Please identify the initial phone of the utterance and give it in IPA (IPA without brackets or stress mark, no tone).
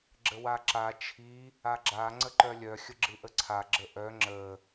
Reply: ɡ͡ǁ